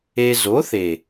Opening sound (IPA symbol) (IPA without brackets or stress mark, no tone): e